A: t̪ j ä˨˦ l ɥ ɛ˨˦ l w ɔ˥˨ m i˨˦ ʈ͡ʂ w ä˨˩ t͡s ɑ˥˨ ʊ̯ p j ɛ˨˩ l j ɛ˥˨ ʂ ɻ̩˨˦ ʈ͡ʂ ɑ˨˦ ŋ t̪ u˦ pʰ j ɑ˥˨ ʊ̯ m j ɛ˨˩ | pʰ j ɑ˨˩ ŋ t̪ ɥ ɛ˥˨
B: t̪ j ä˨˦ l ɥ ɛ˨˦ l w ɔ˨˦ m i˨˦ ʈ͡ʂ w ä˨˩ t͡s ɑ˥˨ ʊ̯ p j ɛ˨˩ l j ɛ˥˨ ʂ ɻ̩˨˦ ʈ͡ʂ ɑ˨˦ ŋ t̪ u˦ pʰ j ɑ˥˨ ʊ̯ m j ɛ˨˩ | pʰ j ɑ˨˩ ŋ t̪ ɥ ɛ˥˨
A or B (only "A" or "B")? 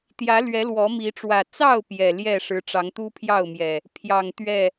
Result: B